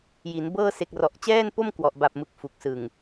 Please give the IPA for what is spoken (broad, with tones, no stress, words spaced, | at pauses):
ji˩˦nbɤː˥˩ se˨˩k̚rɔ˨˩ʔt͡ɕɛː˥˩npo˥˩m kwɔ˨˩ʔba˨˩p̚mɯ˨˩k̚ fu˨˩k̚sɯ˨˩ŋ